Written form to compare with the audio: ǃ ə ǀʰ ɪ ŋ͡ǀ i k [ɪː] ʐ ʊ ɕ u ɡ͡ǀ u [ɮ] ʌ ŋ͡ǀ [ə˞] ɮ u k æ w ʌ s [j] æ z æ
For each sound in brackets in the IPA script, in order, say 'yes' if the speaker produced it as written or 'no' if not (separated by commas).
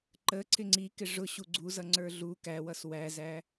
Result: no, no, yes, no